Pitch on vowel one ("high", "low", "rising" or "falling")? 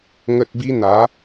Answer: low